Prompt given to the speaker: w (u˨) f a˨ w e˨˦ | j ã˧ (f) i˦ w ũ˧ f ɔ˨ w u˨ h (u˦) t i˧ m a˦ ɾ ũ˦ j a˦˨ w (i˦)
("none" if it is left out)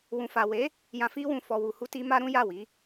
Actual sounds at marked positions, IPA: ũ˨, f, u˧, i˨˦

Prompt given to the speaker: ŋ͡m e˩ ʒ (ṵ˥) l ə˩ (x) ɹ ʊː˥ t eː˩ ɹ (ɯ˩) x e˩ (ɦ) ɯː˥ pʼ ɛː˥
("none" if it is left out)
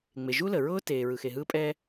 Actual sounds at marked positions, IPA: u˥, none, ɯ˩, ɦ

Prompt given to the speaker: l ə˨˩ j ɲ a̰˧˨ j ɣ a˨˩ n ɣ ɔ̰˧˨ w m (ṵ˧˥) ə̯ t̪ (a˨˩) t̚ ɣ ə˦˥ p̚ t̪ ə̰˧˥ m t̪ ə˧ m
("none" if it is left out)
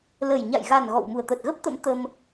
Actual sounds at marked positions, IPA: u˨˩, ə˨˩

